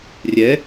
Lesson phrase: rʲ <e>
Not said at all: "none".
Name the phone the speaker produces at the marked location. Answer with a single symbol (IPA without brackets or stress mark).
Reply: ɛ